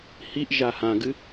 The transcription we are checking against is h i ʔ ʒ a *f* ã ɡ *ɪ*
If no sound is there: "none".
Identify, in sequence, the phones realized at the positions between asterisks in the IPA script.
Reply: h, ɨ

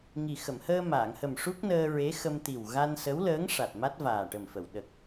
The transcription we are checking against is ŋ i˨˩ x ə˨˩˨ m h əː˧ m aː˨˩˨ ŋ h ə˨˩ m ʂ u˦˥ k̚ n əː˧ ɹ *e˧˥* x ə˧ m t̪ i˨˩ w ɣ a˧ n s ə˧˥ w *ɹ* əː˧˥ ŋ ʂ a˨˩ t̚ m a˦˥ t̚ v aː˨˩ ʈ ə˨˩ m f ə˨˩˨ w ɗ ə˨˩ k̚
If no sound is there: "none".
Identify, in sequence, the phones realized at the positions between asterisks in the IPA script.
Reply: e˧˥, l

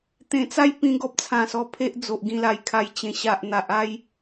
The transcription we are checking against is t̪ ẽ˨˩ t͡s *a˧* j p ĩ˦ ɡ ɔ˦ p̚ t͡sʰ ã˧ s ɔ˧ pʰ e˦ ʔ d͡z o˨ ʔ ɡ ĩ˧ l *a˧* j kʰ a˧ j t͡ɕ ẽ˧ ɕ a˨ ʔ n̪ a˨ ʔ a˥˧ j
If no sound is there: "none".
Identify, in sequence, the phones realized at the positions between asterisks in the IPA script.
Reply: a˥˧, a˧

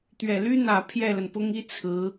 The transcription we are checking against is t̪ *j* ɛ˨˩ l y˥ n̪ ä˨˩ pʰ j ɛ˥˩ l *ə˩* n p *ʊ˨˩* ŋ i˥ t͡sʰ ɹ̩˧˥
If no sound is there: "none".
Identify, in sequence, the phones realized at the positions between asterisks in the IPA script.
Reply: ɥ, ə˩, ʊ˥

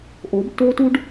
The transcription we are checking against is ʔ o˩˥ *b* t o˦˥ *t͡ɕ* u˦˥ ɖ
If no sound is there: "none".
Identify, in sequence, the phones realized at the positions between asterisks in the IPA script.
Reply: b, t

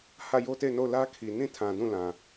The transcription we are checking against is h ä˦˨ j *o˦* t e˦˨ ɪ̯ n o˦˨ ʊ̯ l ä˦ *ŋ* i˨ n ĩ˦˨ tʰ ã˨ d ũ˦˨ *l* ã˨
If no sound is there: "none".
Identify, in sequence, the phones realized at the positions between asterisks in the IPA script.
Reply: o˦, kʰ, l

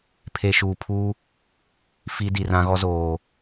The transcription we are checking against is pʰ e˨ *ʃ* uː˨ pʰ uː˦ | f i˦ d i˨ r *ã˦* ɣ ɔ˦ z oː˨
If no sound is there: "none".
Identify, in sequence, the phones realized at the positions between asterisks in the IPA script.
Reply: ʃ, ã˦

